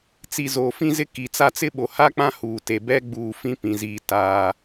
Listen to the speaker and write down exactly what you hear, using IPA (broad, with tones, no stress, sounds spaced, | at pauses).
t͡s i˨ z oː˨ f ĩ˦ z ɪ˦ k i˨ t͡s a˦ t͡s ɪ˦ ɓ o˨ h a˦ k͡p ã˦ h uː˨ t e˨ b ɛ˦ ɡ͡b uː˨ f ĩ˦ p ĩ˨ z iː˨ t aː˨